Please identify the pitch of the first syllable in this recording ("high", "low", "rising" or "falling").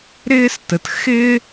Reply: high